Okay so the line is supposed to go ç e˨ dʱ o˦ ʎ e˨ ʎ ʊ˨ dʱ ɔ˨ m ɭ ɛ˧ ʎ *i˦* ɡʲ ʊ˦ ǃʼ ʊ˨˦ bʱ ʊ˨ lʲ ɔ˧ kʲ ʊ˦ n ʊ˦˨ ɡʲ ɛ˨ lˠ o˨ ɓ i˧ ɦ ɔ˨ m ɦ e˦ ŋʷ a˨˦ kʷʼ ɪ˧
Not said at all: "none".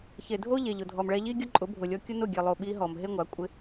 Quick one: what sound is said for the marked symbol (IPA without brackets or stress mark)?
i˦